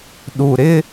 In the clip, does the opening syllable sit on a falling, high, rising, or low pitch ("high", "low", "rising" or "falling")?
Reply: low